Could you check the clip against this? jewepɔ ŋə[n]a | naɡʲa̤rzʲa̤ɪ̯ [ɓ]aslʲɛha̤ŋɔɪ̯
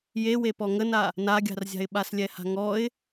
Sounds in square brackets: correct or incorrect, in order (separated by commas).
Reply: correct, correct